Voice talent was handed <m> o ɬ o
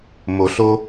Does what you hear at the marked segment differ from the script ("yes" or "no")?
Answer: no